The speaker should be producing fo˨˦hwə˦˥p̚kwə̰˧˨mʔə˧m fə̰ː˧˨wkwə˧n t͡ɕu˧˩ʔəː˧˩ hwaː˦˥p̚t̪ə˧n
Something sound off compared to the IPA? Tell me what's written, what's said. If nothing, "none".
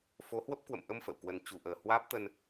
none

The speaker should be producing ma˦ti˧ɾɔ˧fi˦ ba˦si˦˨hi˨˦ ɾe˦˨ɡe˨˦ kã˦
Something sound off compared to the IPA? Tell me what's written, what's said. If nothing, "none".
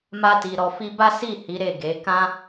none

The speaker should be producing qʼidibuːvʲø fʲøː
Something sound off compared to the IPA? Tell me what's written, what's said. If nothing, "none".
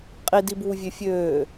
none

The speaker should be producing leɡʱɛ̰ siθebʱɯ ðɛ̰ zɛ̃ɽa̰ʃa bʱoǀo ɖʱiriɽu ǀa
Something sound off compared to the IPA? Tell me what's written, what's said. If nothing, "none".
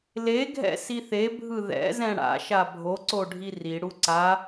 none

